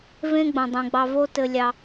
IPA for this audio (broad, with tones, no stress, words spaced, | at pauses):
vẽ˦ɡ͡bõ˨dˤũ˨ɡ͡bɑ˧ vo˦tɘ˧lʲɑ˧